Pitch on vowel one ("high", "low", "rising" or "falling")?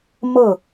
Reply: falling